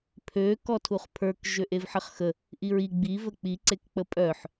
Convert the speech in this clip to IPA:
pʰ ø k ɔ tʰ u χ pʰ ə˞ k ʒ ø ʔ e v ħ ə χ x ə | ʔ i ɹ i ɡ͡b i v ə k͡p i ǀ e k k͡p ə pʼ œ ħ

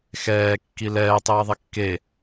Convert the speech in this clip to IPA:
x ɛː kː i l ɛː tˤ iː ðˤ ɛ kː e

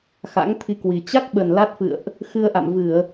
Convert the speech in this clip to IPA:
x a̰˧˥ ŋ t̪ʰ i˧ k w i˨˩ t͡ɕ a˦˥ k̚ ɓ ə˨˩ n l a˦˥ t̚ f ɨ̰˧˨ ə̯ ʔ | x ɨ˧ ə̯ ʔ a̰˧˨ m v ɨ˧˩˨ ə̯

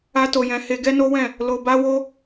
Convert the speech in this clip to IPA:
a˦ t o˧ j ɛ̃˧ h e˧ ɡ ɛ˦ n o˦ w ɛ̃˦˨ | l o˧ b a˦ w o˦

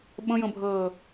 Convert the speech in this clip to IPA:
ɓ ə̃ j ə̃ bʱ əː

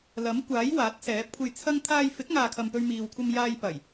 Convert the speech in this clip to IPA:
l ɐ˨˥ m kʷ aː˨˥ j w aː˨˥ t̚ s ɛː˨˥ p̚ kʷʰ e˧ j t͡sʰ ɐ˥ ŋ t̪ʰ aː˧ j f ɪ˨˥ k̚ ŋ aː˨ kʰ ɐ˨ m p ɵ˧ ɥ m iː˨ w kʷʰ ɐ˧ m j aː˧ j p ɐ˨˩ j

